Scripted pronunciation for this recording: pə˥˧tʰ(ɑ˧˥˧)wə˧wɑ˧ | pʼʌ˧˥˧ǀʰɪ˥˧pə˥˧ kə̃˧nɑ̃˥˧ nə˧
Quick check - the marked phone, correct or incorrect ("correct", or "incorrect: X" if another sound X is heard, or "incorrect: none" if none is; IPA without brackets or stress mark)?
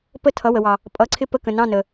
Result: incorrect: ʌ˧˥˧